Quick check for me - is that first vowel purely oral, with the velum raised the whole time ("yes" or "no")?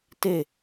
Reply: yes